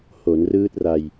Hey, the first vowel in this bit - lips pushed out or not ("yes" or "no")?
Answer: yes